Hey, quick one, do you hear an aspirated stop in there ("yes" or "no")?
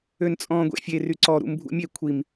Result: yes